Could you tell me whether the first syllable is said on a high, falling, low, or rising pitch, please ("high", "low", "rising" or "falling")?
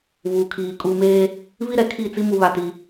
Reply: low